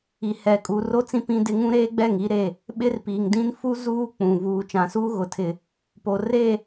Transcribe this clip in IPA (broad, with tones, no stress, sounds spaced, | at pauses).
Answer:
i˨ h ɛ˨ kʼ uː˨ r o˦ t͡s ĩ˦ p ĩ˦ d ɪ˦ ŋ ũ˦ ɾ eː˦ ɡ͡b ɛ˦˨ ŋ i˦ ɾ e˦˨ | ɓ ɪ˦ r p iː˨ ŋ d ĩ˦ n f u˦ z uː˦ k͡p ũ˨ v uː˨ t͡ʃ ã˨ s uː˦ ɣ ʊ˨ tʰ ɪ˨ | p o˨ r e˦˨